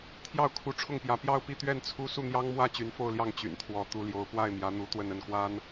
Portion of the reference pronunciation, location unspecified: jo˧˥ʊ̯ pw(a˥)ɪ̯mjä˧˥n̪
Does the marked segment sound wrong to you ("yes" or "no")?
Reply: yes